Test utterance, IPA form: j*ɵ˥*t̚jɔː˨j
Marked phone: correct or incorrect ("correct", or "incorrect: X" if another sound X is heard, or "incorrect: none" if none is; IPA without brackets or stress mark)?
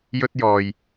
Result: correct